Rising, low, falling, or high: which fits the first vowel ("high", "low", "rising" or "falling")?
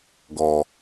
low